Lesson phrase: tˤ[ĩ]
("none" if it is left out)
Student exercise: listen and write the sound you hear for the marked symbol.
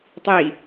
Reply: i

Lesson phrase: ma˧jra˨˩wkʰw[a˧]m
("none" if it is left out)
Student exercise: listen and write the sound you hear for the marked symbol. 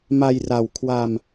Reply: a˧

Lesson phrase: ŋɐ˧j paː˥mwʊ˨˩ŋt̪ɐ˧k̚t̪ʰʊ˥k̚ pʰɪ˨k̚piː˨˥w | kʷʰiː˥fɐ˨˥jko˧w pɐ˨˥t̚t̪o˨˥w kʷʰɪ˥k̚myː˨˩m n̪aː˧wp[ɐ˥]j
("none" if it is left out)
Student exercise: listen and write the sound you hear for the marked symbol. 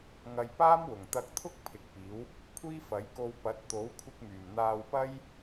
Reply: ɐ˥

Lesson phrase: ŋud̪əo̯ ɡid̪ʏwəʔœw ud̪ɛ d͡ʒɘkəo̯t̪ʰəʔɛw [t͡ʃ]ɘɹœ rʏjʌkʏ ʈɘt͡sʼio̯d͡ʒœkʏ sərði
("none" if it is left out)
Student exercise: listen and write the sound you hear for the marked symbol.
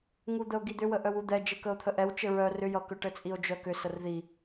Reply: t͡ʃ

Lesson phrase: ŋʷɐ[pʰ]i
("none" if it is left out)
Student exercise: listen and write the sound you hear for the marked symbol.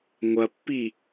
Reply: pː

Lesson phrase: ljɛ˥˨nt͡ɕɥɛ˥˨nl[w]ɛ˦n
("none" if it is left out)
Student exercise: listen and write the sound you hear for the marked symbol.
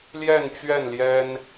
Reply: j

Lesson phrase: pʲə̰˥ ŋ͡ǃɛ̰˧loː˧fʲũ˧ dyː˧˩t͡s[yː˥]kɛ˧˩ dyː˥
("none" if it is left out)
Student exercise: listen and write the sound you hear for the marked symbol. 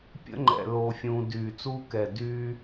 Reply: uː˥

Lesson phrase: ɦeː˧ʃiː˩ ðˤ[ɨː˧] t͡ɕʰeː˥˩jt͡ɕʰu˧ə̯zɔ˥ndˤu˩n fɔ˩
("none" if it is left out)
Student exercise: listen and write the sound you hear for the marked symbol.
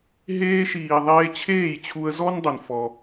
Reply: eː˧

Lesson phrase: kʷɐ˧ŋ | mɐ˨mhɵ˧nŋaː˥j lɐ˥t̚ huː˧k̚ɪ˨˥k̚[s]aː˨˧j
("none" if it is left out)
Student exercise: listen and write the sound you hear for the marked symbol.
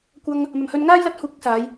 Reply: s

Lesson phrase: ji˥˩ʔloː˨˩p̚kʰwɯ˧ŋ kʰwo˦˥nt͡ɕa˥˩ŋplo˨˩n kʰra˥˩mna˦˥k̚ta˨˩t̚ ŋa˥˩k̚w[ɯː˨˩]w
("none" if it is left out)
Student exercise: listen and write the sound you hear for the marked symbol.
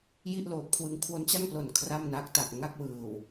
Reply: ɯː˨˩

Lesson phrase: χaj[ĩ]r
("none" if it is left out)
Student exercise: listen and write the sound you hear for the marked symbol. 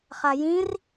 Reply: ĩ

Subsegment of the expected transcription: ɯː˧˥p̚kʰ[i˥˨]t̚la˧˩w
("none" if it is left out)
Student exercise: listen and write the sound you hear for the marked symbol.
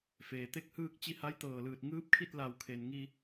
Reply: i˥˨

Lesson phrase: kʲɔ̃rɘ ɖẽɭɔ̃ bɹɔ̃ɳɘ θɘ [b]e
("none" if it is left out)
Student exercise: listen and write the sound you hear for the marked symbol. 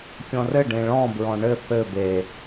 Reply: b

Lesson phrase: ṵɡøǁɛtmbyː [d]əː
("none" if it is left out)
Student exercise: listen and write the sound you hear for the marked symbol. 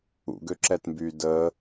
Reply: d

